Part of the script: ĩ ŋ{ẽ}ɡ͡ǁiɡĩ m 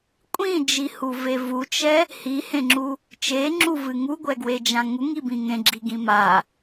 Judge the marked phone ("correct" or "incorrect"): correct